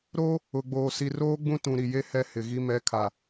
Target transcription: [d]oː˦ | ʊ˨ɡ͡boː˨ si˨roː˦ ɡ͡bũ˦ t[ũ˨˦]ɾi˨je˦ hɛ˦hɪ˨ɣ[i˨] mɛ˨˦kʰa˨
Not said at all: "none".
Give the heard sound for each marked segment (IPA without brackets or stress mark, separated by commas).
ɾ, ũ˨, i˦